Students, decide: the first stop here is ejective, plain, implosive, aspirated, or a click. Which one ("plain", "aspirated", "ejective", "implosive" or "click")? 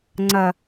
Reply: click